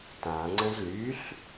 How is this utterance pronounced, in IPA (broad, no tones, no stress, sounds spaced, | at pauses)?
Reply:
t ã ŋ͡ǀ ə̃ z l y ɬ